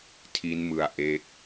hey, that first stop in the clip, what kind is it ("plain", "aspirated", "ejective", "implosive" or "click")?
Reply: aspirated